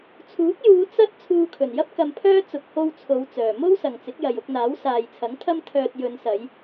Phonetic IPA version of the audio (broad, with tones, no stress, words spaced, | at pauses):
t͡sʰuː˨˥k̚juː˨˧ t͡sɐ˥t̚ t͡sʰuː˧kʰɵ˨˩njɐ˥p̚ kɐ˧mpʰœː˥ t͡sʊ˨k̚ho˧w t͡sʰo˨˧wt͡sœː˨˩ mo˥wsɐ˨ŋt͡sɪ˨˥k̚jɐ˨j ʊ˧k̚n̪aː˨˥w saː˨jt͡sʰɐ˨˥ŋ t̪ʰɐ˥mt̪ʰœː˧t̚ jɵ˨˧nsɐ˨˧j